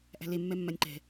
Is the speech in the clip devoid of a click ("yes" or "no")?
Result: no